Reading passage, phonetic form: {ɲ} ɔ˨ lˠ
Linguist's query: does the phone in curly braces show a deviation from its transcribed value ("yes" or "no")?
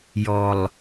yes